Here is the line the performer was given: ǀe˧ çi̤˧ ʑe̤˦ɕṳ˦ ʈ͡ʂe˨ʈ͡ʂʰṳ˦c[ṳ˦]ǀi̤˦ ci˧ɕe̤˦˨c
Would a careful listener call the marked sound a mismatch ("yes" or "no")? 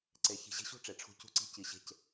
no